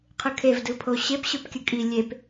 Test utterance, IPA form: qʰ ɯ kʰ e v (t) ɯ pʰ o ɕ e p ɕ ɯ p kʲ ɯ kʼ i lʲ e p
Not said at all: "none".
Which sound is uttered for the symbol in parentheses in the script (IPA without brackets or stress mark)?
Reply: d